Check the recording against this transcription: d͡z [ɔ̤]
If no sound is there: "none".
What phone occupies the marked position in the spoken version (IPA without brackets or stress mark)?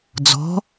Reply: ɔ̤